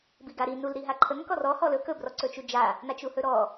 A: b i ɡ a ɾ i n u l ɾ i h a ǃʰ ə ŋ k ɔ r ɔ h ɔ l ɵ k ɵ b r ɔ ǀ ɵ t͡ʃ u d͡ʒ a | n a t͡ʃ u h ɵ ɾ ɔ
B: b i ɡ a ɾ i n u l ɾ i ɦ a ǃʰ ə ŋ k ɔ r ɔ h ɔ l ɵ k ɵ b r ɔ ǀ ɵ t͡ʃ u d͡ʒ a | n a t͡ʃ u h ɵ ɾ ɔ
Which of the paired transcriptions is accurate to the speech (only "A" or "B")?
B